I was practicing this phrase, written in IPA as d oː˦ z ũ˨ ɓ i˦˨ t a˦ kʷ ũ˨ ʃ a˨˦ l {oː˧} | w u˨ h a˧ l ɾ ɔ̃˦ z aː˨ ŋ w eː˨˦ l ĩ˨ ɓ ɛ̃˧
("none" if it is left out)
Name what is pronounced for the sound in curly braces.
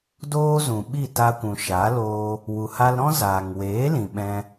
oː˧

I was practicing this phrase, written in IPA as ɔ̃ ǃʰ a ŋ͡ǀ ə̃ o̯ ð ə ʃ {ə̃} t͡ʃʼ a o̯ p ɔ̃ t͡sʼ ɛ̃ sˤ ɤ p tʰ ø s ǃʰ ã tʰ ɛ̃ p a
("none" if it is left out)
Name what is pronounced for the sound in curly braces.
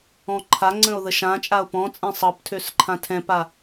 ã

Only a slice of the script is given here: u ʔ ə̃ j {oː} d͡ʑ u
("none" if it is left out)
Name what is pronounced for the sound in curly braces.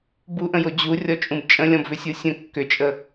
o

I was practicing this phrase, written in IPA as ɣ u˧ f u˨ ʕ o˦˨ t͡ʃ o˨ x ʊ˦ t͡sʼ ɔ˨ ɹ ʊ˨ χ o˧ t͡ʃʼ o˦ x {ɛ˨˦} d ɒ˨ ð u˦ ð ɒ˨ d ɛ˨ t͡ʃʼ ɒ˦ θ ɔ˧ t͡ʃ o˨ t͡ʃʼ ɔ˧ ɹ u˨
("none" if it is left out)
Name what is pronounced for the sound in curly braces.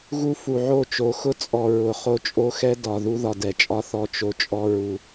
ɛ˦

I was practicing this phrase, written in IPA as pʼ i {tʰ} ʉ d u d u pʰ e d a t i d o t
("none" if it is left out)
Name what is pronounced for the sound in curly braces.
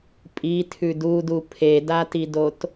tʰ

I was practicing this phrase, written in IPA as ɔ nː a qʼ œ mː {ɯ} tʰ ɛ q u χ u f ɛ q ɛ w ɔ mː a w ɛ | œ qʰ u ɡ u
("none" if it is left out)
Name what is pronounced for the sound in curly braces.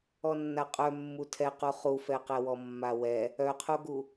u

